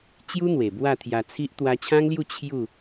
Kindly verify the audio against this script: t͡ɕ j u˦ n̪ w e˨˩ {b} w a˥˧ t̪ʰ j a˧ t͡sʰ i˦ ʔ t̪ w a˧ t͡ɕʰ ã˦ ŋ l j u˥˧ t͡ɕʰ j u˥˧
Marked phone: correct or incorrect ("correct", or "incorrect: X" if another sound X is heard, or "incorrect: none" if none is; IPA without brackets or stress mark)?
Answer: correct